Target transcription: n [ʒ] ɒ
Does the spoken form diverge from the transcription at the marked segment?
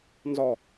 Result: yes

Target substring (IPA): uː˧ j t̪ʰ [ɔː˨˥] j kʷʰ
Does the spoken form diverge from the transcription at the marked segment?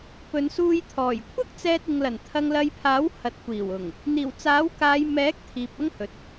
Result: yes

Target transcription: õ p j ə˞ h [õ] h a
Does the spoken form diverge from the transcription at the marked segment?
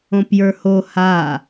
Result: yes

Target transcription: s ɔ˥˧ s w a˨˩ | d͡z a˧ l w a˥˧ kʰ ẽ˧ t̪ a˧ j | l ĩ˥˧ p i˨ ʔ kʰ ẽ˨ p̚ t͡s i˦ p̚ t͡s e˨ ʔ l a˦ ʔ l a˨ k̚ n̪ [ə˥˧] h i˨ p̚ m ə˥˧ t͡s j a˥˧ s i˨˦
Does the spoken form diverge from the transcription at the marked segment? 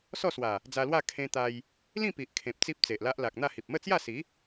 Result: yes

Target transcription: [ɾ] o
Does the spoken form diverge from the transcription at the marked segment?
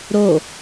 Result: no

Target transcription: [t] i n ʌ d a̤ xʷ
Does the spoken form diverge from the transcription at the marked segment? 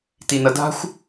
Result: no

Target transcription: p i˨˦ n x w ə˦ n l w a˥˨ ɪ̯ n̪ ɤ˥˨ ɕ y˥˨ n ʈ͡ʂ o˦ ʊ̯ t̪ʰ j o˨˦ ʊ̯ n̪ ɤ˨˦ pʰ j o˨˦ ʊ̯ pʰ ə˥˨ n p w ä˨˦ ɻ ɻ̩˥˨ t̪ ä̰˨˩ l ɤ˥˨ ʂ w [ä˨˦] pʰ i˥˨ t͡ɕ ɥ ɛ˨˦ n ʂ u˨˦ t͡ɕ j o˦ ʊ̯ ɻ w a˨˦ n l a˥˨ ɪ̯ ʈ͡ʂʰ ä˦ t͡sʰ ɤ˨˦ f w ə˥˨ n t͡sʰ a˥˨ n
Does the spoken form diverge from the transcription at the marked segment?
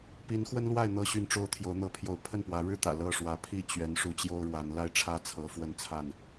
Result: no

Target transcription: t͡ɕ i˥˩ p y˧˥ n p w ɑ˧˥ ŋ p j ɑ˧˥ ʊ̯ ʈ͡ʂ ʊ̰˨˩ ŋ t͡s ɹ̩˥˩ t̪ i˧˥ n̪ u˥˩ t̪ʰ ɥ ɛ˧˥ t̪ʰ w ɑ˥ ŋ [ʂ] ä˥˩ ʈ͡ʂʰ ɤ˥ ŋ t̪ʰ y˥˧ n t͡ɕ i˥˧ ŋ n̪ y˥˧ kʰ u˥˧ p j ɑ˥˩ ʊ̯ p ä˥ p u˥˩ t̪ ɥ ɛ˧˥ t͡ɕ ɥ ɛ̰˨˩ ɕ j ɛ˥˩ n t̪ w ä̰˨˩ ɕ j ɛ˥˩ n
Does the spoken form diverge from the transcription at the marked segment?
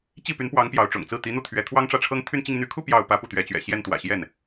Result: yes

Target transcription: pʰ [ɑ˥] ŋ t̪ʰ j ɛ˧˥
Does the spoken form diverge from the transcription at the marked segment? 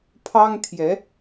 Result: no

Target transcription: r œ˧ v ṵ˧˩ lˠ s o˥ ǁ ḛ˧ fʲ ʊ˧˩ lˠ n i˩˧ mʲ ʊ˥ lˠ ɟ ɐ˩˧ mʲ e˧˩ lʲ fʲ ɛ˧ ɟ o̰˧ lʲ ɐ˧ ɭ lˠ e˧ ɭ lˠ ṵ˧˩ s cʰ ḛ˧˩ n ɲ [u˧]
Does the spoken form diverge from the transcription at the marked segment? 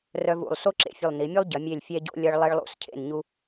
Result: no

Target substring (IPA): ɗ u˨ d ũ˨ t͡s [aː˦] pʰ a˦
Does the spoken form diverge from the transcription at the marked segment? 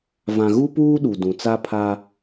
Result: yes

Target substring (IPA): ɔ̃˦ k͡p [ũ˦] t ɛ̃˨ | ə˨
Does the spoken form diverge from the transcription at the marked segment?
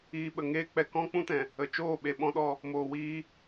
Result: no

